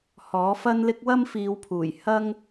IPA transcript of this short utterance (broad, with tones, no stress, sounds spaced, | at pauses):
h ɔː˨˥ f ɐ˥ n l ɪ˥ k̚ w ɐ˥ m f iː˨˧ w pʰ uː˨˩ j h ɐ˥ ŋ